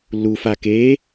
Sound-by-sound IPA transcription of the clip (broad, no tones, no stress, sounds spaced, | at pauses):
lː uː f a k eː